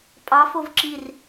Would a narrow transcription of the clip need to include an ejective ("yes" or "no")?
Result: yes